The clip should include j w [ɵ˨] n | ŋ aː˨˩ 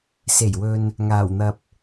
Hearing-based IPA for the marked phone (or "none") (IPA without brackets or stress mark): ɵ˨